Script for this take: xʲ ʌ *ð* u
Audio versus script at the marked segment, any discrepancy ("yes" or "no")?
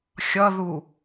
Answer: no